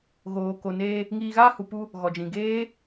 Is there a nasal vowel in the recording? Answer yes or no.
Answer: yes